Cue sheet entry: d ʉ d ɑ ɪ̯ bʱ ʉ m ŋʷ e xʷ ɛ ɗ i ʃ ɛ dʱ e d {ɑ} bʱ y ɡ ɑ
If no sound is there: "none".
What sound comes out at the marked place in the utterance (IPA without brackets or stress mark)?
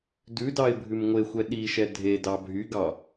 ɑ